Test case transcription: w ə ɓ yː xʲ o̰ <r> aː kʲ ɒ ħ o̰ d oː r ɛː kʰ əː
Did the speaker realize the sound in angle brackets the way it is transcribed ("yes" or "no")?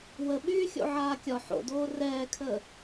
no